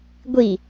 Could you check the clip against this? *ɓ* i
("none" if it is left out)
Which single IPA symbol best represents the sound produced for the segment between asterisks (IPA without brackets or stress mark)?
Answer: ɡʷ